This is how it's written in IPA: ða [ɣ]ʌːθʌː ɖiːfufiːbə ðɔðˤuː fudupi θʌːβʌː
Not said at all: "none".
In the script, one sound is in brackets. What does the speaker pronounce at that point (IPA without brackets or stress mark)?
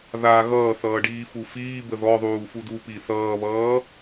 ɣ